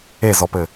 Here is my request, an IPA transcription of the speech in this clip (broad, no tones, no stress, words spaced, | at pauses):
ezɔpɘ